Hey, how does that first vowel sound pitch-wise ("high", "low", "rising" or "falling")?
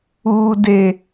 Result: high